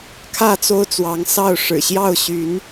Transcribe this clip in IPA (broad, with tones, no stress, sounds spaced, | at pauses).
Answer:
kʰ ä˥˨ t͡s o˦ ʊ̯ t͡s w ɑ˨˦ ŋ s ɑ˥˨ ʊ̯ ʂ ɻ̩˨˩ ɕ j ɑ˥˨ ʊ̯ ɕ y˨˦ n